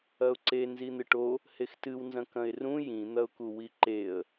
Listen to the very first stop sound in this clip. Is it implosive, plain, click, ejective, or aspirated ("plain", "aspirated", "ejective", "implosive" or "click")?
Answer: click